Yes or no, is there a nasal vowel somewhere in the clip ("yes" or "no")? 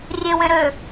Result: yes